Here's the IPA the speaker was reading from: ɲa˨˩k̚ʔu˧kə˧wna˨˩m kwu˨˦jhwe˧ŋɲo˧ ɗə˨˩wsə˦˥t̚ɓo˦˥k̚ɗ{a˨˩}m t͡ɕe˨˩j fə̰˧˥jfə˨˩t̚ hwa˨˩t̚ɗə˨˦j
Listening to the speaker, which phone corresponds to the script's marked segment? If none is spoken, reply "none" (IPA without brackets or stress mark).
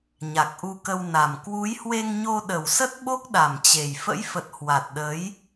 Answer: a˨˩